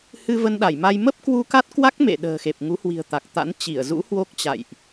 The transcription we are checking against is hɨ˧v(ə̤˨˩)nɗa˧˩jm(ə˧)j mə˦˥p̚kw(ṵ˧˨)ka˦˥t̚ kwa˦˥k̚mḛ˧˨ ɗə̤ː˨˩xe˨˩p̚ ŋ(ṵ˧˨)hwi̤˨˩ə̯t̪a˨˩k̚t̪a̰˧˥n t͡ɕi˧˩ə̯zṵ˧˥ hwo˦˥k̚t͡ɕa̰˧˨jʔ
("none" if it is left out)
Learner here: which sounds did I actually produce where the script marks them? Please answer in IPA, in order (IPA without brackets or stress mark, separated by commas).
ə˧, a˧, u˧, u˨˦